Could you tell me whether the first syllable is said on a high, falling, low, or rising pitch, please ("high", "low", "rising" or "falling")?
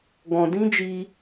low